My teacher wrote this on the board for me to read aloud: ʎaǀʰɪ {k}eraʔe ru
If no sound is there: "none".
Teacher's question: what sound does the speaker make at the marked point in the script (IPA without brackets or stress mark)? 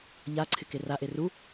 k